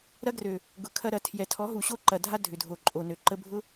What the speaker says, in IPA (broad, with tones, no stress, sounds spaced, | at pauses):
ɾ ɐ˦ ɡ r ø˨ | ɡ ʊ˨˦ kʰ ɐ˦ ɾ ɐ˨ tʰ j ɛ˨ tʰ ɔ˨˦ ɦ u˨ ɕ o˦ ǃ ɐ˨ dʱ a˦ dʱ ʏ˨ dʱ o˨ ǃʼ o˨ n ø˨ ǃ ə˧ bʱ ʊ˦